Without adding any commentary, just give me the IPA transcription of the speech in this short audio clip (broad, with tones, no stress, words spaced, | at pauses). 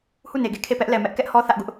hu˦˨ne˨ɡe˦˨ kʰe˦˨pɛ˦ʔlɛ˨ mɛ˦ʔkɛ˦ʔhɔ˦ θä˦ʔɡʊ˦ʔ